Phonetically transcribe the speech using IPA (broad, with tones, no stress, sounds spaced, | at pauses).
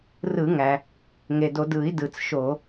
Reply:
r ɯ˧˩˧ ŋ æ˩ | ŋ e˩ d o˧˩˧ d ɯ˧˩˧ i̯ d ɯ˩ t͡s ʃ o˧˩˧